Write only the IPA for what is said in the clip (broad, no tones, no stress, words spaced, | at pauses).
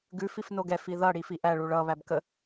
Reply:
ɡʉ fifnoɡɛf iðʌ ɽifiʔæ ɭuɭʌ βæbkə